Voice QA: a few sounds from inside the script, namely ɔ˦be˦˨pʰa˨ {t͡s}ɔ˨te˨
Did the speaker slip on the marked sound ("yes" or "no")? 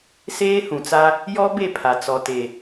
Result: no